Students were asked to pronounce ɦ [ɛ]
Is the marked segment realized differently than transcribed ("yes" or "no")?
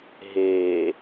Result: yes